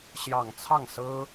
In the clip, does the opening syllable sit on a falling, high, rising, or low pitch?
low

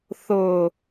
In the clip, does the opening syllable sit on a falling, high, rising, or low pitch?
low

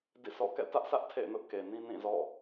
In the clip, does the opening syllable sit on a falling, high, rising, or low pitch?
falling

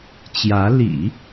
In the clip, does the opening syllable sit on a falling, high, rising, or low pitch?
rising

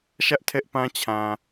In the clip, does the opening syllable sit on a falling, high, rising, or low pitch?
high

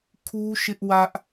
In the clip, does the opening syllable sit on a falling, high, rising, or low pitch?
high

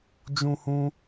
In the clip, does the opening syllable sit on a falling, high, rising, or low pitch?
high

